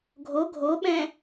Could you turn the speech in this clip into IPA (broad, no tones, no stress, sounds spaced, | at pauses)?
ɡʱ o ɡʱ o ɓ ɛ̃